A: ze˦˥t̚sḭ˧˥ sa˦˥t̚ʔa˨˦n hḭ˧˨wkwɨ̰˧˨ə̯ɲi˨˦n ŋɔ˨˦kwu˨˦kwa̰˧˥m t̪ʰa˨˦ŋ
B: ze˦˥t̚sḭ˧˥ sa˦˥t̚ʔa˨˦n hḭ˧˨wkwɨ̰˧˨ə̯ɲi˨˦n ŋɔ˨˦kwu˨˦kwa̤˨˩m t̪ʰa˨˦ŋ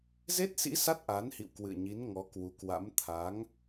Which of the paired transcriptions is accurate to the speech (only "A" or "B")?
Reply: A